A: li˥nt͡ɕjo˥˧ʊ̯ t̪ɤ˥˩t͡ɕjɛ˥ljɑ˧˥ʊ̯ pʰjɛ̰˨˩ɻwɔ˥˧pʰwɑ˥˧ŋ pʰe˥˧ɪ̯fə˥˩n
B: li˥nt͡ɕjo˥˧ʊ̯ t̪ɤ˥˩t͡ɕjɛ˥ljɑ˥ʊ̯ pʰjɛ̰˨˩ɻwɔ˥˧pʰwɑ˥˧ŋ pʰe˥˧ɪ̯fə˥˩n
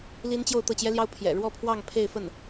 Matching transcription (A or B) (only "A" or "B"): B